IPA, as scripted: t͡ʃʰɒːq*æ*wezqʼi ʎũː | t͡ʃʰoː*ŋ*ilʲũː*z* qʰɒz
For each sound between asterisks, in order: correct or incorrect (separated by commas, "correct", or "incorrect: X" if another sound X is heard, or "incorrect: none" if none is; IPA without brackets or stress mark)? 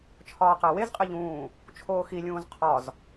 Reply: correct, incorrect: x, correct